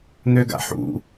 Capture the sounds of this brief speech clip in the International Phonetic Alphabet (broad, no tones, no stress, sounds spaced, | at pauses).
n̪ ø ɡ a̰ ħ ṵ